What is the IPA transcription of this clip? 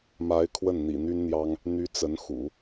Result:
m a˧˥ ɪ̯ kʰ w ə˥˩ n n̪ ḭ˨˩ n̪ y˥ n n̪ j ɑ˥ ŋ | n̪ y˧˥ t͡s ə˧˥ n x ṵ˨˩˦

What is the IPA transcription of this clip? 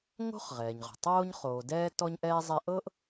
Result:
ŋ o̤˥ χ ʁ ɛː˩ ɲ ʁ o̤˩ tˤ oː˧ ɲ χ oː˩ d ɛː˧ t ɔ˧ ɲ ʔ ɛː˧ zˤ ɛ˧ ʔ ɤ˥ ʔ

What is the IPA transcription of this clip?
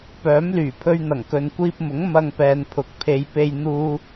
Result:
p œː˨˥ m l yː˨˩ pʰ ɵ˧ ɥ n̪ ɐ˨˩ ŋ k ɵ˨ n kʷ iː˧ p̚ m ʊ˨˥ ŋ m ɐ˧ ŋ p ɛː˨ n pʰ ʊ˨˥ k̚ pʰ e˨˧ j p e˧ j n̪ uː˥

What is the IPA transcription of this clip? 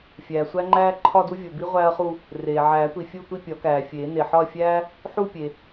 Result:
fʲ æː˩ sʷ æ˥ ŋ͡ǃ æː˥ ǃʰ ɒ˥˧ d u˥ vʲ o˩ b i˥ ʁʷ æː˥ ɐ̯ χ u˥˧ | r eː˩ ʕ æː˨˩˦ tʷ i˩ fʲ u˥˧ tʷ i˥˧ pʲ ɒ˨˩˦ k æː˩ fʲ eː˨˩˦ n e˩ ħ ɒ˥˧ ɐ̯ fʲ æː˥ | ħ u˥˧ pʲ e˩

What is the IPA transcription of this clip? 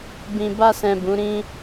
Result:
b ĩ˨ b a˧ s ɛ̃˨ b ũ˨˦ ɾ ĩ˦

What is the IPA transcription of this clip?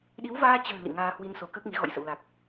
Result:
ɗ i˨˦ w v aː˧ t͡ɕ ə̤ː˨˩ l ḭ˧˨ ŋ aː˧ h w i˧ n s o˨˦ k əː˦˥ k̚ ŋ i˨˦ ɣ ɔ̰˧˨ j s ə̰˧˨ w l a˨˩ k̚

